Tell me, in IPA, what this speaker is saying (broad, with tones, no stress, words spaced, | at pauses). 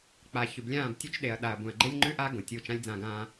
k͡pa˨ çʉ˨blʲãː˦˨btʲʉ˦t͡ʃ ɗe˨ɐ̯ɗa˨ɐ̯ bũ˨ɐ̯ɡ͡ǃe˦lʲŋ͡ǃʉ˦ʔa˦ ɡõ˨tʲu˦˨ t͡ʃã˦lʲd͡zã˦˨ɡãː˦